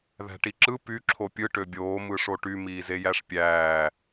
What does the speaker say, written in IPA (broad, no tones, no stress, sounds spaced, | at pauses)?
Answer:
ð æ̤ ʈ i ǁ ɯ p y ǁʰ o pʲ ɯ ʈ ø bʲ oː m ɯ ʂ o ʈ y m iː z e j æ ʂ pʲ æː